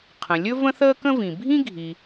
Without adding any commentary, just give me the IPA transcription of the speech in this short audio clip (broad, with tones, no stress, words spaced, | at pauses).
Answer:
qʰə̃˩lʲɵ˦ və̃˥θəː˥kə̃˥vĩ˩ bʱĩ˥ɡʱi˨